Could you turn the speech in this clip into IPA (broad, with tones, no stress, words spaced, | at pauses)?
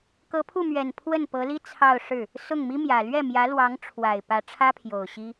kɤ˧˥pʰu˥˩mɥɛ˨˩n pʰwə˥˩npɤ˧˥li˥ t͡sʰɑ˥˧ʊ̯ʂɻ̩˥˩ | sʊ˥˩ŋmi˥mjä˨˩ lɥɛ˥˩mjä˧˥lwɑ˧˥ŋʈ͡ʂʰwa˨˩ɪ̯ pä˧˥ʈ͡ʂʰä˥pʰjo˨˩ʊ̯ ɕi˥